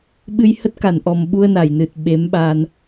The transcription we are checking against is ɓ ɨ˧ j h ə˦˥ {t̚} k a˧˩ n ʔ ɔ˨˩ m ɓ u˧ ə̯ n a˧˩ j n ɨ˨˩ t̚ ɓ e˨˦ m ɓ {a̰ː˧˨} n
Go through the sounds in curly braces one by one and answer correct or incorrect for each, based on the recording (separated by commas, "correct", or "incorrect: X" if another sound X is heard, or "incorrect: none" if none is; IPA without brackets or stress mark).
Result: correct, incorrect: aː˧